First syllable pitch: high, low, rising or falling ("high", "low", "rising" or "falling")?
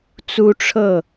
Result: high